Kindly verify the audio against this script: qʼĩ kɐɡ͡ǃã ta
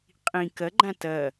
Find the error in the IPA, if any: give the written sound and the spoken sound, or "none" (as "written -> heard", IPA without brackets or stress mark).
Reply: a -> ɐ